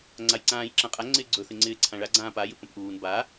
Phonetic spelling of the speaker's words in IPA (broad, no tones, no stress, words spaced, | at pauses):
ŋ͡ǀajǀãːjǁãqʼa ŋ͡ǀɪːɡ͡ǀɵ θɪŋ͡ǀɪːǀʰãɭa ɡ͡ǀãːpa jɨpə̃pʔuːn ba